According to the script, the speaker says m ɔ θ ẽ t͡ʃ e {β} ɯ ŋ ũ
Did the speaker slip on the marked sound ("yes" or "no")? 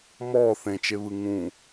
no